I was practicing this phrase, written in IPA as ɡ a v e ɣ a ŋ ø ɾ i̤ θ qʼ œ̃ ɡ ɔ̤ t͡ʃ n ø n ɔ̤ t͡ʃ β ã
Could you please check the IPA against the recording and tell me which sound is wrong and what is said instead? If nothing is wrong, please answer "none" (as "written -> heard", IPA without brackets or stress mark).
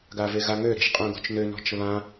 θ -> ʃ